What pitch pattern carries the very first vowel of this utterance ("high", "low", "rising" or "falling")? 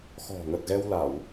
low